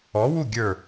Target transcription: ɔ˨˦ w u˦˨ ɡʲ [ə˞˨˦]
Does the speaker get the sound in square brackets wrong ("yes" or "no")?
yes